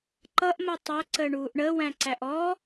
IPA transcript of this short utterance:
ǃʌʔ mɜtˤæ ǀəːɳuːʔɳəː wæ̃ǀæʔɔ

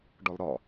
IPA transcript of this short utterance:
ɖɒlɾɒ

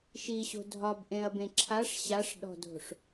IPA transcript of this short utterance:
ʃiɕo̤ dʱɒbʔẽɐ̯bẽ ǁʰaʂ ɕaʂɗɔ̤dʱo̤ʂ

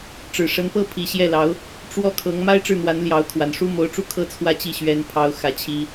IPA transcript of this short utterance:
ʈ͡ʂɻ̩˨˩ʂə˧˥npɤ˥ pʰi˧˥ ɕjɛ˥˩lɑ˧˥ʊ̯ | ʈ͡ʂwɔ˥˩kʰɤ˧˥ŋ ma˥ɪ̯ʈ͡ʂɻ̩˥˩n̪wa˧˥nljɑ˧˥ʊ̯ kʰwa˨˩nʂu˥ mo˧˥ʊ̯ʈ͡ʂu˥˧kʰɤ˥˧ t͡sʰwä˥˧t͡ɕi˥˩ ɕɥɛ˥npʰɑ˥ʊ̯ xä˥˩t͡ɕʰi˥

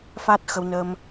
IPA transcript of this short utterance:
fa˦˥t̚xə˧wnəː˧m

